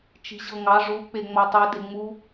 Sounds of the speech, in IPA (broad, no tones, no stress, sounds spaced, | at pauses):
t͡ʃ i̤ ʑ ɤ ŋ ɑ ʐ u k͡p e ŋ͡m ɔ tˤ u d e ŋ͡m u